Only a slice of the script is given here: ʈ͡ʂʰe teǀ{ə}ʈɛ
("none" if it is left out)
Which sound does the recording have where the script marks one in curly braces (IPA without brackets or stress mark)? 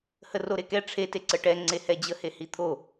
ə